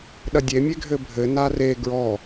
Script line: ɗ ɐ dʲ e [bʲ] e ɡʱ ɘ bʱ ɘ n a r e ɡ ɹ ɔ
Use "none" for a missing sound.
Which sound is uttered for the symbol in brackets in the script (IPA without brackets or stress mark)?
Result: mʲ